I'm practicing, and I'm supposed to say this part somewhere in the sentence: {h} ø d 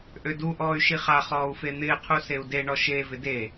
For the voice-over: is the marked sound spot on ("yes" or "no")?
no